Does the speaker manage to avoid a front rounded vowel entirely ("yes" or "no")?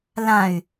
no